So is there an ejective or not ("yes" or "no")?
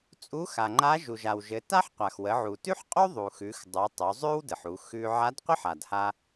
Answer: yes